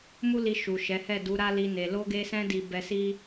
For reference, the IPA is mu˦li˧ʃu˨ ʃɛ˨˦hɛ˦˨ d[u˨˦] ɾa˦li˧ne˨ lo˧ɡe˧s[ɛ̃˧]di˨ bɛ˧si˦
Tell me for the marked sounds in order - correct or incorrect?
correct, correct

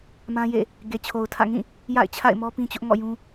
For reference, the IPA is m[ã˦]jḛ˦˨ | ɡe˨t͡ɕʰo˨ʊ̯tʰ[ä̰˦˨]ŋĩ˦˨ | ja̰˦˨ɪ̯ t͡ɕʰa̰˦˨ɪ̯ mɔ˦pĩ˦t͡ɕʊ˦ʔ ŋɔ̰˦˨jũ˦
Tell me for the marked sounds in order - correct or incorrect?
correct, correct

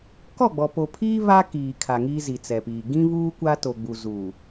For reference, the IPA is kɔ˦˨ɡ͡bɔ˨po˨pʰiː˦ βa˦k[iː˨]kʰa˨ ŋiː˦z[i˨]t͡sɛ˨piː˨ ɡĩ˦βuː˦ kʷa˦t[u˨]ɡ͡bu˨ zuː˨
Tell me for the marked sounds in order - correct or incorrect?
correct, correct, incorrect: o˨

